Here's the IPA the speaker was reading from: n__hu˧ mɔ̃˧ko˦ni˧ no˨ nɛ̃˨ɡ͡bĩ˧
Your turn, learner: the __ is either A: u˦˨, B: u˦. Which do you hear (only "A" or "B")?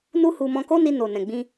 B